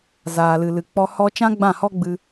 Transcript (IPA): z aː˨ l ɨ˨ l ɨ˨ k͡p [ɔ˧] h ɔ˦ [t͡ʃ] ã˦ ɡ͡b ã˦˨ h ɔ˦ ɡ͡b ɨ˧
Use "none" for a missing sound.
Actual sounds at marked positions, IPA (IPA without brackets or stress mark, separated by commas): ɔ˧, t͡ʃ